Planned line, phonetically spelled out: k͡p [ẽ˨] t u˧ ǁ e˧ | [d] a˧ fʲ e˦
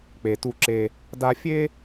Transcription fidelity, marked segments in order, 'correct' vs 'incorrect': incorrect: e˨, correct

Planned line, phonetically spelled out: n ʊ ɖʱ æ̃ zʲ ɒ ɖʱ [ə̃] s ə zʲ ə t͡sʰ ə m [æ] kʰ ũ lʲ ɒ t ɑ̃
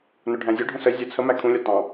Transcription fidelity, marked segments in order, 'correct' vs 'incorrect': correct, correct

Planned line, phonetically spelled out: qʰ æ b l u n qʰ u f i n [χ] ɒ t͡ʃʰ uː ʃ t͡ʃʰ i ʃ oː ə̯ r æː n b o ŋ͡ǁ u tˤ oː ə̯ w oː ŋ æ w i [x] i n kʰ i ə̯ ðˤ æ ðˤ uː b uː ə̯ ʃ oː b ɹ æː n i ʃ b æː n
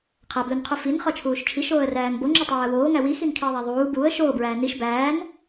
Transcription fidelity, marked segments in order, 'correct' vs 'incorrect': correct, correct

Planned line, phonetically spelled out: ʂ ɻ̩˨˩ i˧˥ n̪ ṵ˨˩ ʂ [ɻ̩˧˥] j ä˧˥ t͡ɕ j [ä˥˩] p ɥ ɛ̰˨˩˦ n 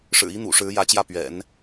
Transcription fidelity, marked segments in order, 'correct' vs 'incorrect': correct, correct

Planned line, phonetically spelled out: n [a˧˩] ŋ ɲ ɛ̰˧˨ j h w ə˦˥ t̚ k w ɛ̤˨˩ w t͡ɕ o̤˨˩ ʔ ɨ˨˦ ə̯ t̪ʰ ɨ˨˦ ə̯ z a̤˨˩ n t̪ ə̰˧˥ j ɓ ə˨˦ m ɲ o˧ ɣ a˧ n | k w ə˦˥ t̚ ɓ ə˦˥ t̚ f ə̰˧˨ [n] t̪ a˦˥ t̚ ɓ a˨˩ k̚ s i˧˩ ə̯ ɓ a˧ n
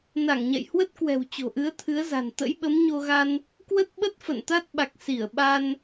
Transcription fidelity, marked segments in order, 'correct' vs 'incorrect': correct, correct

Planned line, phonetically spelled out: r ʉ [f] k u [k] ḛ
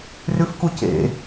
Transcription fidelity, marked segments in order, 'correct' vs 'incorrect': correct, incorrect: c

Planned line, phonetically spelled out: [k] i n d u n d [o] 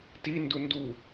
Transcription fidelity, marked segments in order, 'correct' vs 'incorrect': incorrect: t, incorrect: u

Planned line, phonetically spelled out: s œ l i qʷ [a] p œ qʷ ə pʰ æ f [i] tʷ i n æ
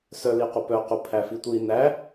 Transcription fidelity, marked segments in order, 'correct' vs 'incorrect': incorrect: ə, correct

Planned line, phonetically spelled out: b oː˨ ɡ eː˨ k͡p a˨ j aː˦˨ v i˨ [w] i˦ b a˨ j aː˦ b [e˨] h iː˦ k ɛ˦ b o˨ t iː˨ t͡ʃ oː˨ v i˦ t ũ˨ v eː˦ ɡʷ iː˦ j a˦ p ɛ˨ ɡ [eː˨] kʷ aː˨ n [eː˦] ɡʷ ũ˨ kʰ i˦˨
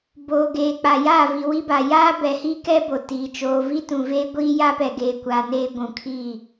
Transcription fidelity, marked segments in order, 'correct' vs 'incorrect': correct, incorrect: ɛ˨, correct, correct

